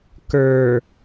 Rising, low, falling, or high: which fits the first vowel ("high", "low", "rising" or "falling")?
low